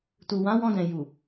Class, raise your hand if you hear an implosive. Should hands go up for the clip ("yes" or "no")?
no